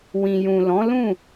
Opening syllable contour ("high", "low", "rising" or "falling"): low